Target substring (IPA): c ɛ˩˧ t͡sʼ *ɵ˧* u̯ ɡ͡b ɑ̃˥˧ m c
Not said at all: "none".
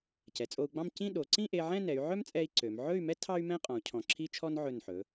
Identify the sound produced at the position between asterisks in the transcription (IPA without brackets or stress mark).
o˧